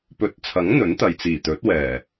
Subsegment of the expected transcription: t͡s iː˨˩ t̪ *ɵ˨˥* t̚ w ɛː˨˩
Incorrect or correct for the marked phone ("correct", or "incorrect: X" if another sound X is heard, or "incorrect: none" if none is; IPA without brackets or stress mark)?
correct